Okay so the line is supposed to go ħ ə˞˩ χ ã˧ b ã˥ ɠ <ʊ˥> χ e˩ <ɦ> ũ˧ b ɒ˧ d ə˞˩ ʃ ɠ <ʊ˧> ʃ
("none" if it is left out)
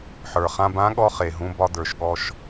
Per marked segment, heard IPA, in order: ɔ˥, ɦ, ɔ˧

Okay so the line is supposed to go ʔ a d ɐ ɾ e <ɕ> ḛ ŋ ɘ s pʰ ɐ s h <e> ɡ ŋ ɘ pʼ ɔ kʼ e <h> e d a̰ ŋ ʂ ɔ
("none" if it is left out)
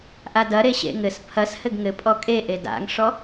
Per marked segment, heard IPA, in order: ɕ, ɘ, ʔ

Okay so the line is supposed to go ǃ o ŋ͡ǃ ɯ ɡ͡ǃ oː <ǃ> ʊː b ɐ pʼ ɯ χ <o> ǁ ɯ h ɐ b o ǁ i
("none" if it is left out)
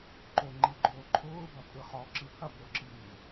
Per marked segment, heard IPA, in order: ǃʰ, ɔ

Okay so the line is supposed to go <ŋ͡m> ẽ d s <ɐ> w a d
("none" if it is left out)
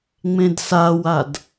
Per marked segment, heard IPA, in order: ŋ͡m, a

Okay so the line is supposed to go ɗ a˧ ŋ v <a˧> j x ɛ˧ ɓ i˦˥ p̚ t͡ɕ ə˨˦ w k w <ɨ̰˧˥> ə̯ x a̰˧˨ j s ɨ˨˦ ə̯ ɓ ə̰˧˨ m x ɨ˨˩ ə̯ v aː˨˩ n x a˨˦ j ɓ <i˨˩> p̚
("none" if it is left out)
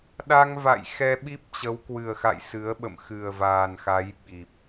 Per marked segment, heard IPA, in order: a̰˧˨, ɨ˨˩, i˨˩

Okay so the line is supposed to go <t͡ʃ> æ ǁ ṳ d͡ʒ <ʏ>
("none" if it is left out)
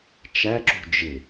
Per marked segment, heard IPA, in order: t͡ʃ, ɪ

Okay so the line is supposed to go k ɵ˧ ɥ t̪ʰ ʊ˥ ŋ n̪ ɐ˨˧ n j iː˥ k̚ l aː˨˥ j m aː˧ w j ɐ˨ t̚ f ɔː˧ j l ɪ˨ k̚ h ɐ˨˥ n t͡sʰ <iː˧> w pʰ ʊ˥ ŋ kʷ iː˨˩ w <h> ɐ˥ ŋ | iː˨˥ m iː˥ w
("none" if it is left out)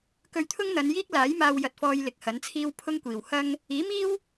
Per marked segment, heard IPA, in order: iː˥, h

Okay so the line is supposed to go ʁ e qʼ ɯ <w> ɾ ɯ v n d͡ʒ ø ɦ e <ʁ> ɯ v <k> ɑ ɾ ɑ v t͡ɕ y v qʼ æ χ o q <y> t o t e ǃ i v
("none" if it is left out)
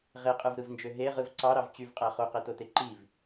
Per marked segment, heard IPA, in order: v, ʁ, ǀ, e

